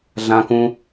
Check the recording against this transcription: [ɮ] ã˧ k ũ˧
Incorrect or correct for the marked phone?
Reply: correct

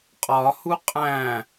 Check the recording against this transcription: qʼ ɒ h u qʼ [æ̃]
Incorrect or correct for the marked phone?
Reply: correct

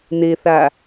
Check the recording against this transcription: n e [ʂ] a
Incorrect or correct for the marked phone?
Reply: incorrect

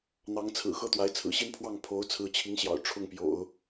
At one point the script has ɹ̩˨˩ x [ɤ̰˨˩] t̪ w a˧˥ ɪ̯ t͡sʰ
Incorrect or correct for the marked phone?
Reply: incorrect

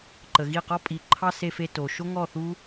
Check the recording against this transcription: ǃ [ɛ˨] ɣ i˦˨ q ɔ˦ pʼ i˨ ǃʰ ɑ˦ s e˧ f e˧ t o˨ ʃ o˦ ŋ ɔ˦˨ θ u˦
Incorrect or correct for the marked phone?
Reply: incorrect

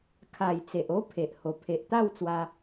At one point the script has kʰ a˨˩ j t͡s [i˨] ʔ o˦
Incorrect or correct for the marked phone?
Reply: incorrect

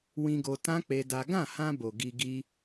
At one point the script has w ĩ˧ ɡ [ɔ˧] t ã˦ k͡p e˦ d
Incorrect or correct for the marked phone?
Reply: incorrect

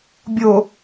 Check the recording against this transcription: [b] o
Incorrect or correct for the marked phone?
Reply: incorrect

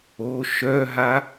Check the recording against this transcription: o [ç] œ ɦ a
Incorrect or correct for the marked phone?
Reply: incorrect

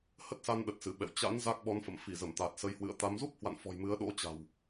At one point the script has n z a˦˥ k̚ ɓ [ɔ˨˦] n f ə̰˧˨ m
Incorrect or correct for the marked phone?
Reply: correct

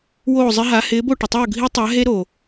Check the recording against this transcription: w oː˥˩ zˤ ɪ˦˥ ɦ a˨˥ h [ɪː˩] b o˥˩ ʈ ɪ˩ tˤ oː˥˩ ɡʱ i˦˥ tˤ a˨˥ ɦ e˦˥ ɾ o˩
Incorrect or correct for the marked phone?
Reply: incorrect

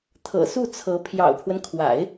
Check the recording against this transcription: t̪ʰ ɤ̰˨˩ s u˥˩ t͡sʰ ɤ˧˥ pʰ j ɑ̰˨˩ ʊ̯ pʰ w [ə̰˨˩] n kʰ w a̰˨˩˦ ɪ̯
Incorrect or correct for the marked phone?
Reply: incorrect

